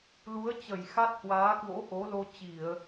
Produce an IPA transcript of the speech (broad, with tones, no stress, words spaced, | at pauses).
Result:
lu˨˦ə̯t͡ɕə˧˩j xa˦˥t̚hwaː˨˦kwo̰˧˥ ʔo˨˦lo˧t͡ɕi˧˩˨ə̯